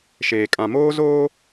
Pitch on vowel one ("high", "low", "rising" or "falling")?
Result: low